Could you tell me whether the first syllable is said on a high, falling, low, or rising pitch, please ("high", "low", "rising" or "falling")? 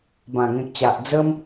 low